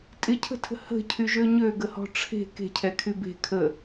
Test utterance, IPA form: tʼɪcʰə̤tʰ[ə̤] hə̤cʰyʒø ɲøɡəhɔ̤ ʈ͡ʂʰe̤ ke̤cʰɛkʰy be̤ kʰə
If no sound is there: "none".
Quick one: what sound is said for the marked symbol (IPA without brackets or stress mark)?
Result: ə̤